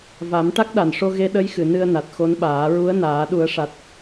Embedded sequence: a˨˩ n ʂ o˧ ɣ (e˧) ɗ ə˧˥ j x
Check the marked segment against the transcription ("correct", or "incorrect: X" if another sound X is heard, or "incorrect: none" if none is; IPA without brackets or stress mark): correct